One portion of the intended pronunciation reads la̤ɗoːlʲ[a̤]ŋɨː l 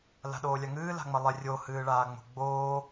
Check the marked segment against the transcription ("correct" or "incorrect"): incorrect